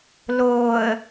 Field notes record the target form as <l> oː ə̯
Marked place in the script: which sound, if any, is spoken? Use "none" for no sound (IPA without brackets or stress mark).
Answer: l